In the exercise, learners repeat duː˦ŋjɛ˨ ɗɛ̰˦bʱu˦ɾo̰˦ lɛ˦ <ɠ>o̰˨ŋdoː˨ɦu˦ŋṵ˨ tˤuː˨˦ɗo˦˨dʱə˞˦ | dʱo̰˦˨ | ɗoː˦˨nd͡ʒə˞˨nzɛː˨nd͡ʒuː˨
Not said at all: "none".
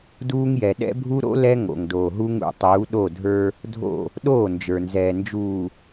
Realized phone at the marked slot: ŋ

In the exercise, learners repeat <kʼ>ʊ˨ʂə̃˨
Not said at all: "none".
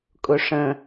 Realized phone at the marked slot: kʼ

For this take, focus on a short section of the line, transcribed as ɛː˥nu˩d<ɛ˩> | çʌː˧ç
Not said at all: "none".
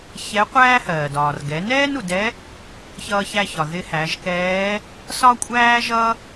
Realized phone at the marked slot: ɛ˧˥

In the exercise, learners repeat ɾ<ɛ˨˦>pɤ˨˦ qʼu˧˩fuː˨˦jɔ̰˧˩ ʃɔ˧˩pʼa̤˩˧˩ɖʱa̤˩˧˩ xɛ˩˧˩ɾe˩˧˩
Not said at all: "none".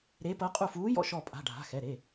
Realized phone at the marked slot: e˨˦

